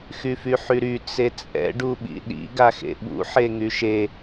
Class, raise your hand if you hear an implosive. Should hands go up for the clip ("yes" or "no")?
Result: yes